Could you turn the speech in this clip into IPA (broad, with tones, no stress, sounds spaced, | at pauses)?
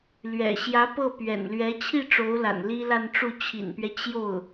l ɥ ɛ̰˨˩ ɕ j ä˧˥ p ɤ˥˩ p ɥ ɛ̰˨˩ n l ɥ ɛ˧˥ t͡ɕʰ i˥˩ ʈ͡ʂ o˧˥ ʊ̯ l a̰˨˩ n l i˥ l a˥˧ n ʈ͡ʂ u˥˩ t͡ɕʰ ḭ˨˩ n p ɥ ɛ˦ t͡ɕ j o˥˩ ʊ̯